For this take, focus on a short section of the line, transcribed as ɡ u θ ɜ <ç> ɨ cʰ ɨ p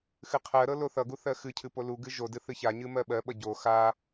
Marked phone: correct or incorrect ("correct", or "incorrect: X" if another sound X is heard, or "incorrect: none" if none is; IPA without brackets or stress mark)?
incorrect: x